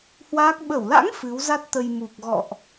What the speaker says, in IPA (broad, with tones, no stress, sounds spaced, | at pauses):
h w aː˦˥ k̚ ɓ ə˧˩ w l a̰˧˥ ŋ f ɨ˨˦ w z a˦˥ t̚ t̪ ə˧ j m u˨˩ k̚ ɣ ɔ̰˧˨ ʔ